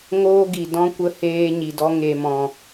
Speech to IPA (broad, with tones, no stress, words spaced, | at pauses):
ŋoː˦ɡi˨dɔ̃˦kʷə˧ heː˦ ɲi˨dɔ˦ ŋe˨mɔ̃˨